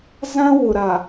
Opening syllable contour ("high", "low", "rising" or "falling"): high